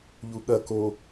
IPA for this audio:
ʎ u ɠ ɐ k o

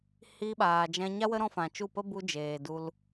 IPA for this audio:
h iː˧ ɓ aː˨ d͡ʒ ɛ̃˧ ɲ a˦ w ə˦ ɾ ɔ̃˦ f ã˨ t͡ʃ u˦˨ p ə˦ b u˧ d͡ʒ eː˨ d u˧ l

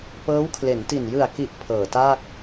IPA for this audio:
p ɤː˦˥ w kʰ l e˩˦ n t i˨˩ n j ɯ˨˩ a̯ k i˨˩ ʔ pʰ ɤː˨˩ t aː˥˩ k̚

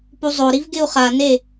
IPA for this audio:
p u zˤ o ɾ i v ɡ ɪ u̯ χ a n e

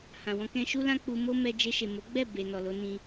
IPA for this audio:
h ã˨ w ɔ̃˧ k ɛ̃˧ ʃ u˦ l ã˦ k͡p u˧ m o˦ m ɛ˧ d͡ʒ e˧ ʃ e˨ m o˨˦ ɡ͡b ɛ˦˨ b e˨ n ɔ˨ l o˨˦ n ĩ˧

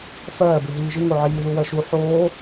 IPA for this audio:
f ɜː b ɯ ɦ iː ʒ ɨ ŋ o ʕ iː ð u w ɜ ʃ u ħ oː

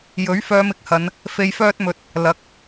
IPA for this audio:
j ɵ˨˥ ɥ f œː˧ m ɪ˥ k̚ h ɐ˨˧ n | f e˧ j f œː˥ t̚ m ɵ˧ t̚ | l ɐ˨˥ k̚

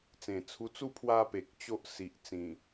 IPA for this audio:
t͡s ẽ˨˩ t͡sʰ u˧ t͡s u˥˧ pʰ w a˧ p e˨ k̚ t͡ɕ o˦ ʔ s i˨ ʔ t͡s ĩ˨˩

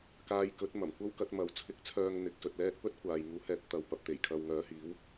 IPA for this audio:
k aː˧ j k ɵ˨˥ t̚ m ɐ˨˩ m kʷ ɐ˥ w k ɐ˨˥ t̚ m ɐ˨˥ w t͡sʰ ɪ˨˥ k̚ t͡sʰ œː˨ ŋ n̪ ɪ˨˥ k̚ s ɵ˧ t̚ l ɛː˥ t̚ p ɵ˥ t̚ kʷ aː˨ j ŋ uː˨˥ h ɛː˨˥ p̚ t̪ ɐ˨ w p ɐ˧ p̚ t̪ e˨˩ j kʰ ɐ˨ w ŋ œː˨˥ h iː˨˥ w

